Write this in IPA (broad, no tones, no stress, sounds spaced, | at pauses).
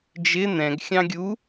d͡ʒ ɪ n̪ ɛ̃ ɡ xʲ ɑ̃ ɡʲ u